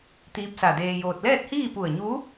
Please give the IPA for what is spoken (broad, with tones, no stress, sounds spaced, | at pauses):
t̪ iː˧˥ p̚ s a˧˩ d eː˧ j oː˧ t̚ l ɛː˥˨ t̚ h iː˥˨ p u˧˩ ə̯ ɲ u˧˥